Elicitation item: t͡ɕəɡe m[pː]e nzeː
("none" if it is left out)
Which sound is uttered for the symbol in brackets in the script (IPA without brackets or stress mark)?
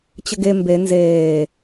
b